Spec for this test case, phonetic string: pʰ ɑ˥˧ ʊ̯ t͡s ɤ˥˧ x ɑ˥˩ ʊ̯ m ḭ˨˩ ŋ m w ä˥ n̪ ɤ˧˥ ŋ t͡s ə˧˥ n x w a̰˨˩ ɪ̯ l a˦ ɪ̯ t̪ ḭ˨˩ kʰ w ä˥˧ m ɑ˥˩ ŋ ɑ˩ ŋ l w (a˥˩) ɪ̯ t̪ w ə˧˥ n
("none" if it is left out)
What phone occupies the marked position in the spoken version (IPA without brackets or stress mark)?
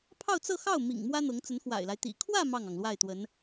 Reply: a˥˩